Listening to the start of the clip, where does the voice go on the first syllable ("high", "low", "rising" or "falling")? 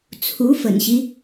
rising